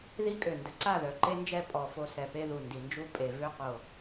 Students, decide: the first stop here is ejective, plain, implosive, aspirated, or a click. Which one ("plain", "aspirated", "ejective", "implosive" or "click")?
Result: ejective